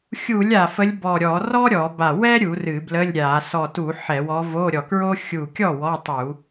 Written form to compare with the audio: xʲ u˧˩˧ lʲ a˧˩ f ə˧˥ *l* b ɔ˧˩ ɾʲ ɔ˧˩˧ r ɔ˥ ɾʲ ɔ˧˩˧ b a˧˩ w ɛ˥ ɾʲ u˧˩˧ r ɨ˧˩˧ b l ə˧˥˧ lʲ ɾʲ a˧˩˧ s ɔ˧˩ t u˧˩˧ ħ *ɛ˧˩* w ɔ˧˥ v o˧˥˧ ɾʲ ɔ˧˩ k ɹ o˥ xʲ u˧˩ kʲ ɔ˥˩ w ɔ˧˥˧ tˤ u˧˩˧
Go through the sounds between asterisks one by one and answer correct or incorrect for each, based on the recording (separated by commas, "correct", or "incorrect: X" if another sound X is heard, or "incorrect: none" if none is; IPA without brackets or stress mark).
incorrect: lʲ, incorrect: ɛ˧˩˧